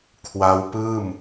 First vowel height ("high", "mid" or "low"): low